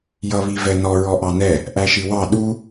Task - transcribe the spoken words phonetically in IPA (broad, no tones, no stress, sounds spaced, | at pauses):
j ʌ β i v ɛ n ɔ ɹ ɔ ʔ ɑ n ɛ | ʔ æ ʃ i w ɑ ɗ u